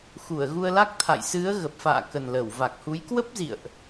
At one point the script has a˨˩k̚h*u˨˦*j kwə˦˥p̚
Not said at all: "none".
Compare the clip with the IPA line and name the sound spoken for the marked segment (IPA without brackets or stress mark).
u˨˦